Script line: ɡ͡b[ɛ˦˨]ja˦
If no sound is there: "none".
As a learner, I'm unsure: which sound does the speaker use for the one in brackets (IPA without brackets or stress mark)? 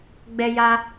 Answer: ɛ˦